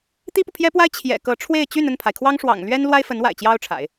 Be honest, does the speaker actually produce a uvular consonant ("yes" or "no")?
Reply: no